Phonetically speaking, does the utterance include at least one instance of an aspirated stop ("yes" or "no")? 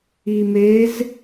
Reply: no